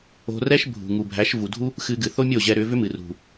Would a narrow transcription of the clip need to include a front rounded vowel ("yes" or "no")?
yes